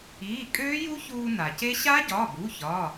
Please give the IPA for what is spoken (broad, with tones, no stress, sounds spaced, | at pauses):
iː˩˧˩ kʼ øː˦˥ j u˦˥ ç uː˧ n a˩ c e˦˥ ɕ a˦˥ ɟ ɒ˩˧˩ b u˩˧˩ ç ɒ˩˧˩